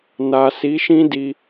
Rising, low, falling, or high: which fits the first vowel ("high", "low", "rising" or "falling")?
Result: low